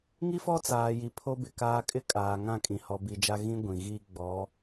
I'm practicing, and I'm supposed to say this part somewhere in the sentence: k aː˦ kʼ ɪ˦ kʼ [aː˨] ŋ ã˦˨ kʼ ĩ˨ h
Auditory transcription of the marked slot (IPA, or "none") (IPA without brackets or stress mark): aː˨